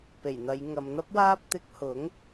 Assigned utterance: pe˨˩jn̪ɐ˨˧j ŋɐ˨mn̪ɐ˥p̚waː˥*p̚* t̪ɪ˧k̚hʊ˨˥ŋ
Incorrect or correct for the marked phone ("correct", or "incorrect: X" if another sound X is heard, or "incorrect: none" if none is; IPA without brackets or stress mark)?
correct